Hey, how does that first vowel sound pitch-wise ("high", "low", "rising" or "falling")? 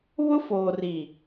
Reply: high